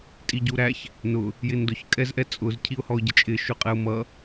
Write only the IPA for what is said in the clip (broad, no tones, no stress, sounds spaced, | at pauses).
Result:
tʼ i ɟ u ɾ æ ç | n ʊ | j ɪ n d ʊ ç kʼ ɛ z ʔ ɛ t͡sʼ ʊ z cʰ i ʊ̯ h ɔ ʊ̯ ɟ ə t͡ʃʼ ɪ ʃ ʊ qʼ ɛ ʊ̯ m ʌ